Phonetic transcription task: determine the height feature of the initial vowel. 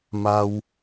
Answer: low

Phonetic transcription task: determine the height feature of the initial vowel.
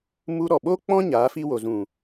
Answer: high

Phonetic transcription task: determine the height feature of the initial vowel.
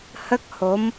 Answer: mid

